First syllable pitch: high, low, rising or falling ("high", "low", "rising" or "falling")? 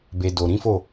low